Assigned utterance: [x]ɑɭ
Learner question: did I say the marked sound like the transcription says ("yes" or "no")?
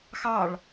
yes